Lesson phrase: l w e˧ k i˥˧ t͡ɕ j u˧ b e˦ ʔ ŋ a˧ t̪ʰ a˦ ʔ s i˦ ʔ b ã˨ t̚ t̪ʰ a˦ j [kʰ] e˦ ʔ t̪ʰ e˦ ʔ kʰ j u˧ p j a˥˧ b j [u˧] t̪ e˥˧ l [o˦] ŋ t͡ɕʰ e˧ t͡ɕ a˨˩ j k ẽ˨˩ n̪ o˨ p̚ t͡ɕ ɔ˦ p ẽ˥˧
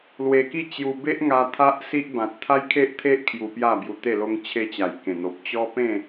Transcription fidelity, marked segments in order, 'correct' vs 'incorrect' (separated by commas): correct, correct, correct